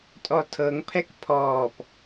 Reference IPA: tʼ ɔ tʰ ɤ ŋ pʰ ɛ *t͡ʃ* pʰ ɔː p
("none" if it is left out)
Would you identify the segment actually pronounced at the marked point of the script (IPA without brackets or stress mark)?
k